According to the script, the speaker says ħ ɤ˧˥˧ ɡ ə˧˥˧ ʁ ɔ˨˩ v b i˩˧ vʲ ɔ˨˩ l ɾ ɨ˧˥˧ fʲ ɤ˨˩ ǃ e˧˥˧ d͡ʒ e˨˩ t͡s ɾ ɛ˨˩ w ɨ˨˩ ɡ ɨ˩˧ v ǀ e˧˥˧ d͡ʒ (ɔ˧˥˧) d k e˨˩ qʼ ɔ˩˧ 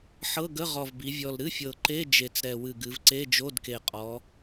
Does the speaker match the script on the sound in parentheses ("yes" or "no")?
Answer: no